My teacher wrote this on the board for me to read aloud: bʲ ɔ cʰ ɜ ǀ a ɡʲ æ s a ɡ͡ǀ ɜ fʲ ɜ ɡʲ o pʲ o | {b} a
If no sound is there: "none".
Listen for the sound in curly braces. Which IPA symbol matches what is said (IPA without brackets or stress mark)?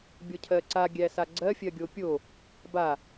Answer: b